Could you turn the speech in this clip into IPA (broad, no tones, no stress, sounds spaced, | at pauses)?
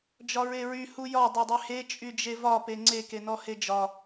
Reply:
d͡ʒ ɒ ɹ e ɹ y h u j ɒ dˤ e dˤ y h e t͡ʃʼ y d͡ʒ e v ɒ p e ŋ͡ǀ e k e n ɔ h e d͡ʒ ɒ